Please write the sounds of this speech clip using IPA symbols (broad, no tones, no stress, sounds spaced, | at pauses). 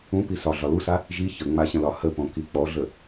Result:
ũ p i s ɒ ɮ ɒ l u s a | ʒ i ç ə ŋ͡m a ɕ ə̃ l ɒ h ə p õ k i k͡p ɔ ɮ ə